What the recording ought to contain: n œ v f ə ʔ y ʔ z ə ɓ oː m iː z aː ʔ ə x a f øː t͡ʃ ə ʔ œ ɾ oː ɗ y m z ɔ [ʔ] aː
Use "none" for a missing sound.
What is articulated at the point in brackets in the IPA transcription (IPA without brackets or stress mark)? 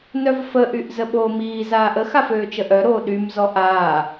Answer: ʔ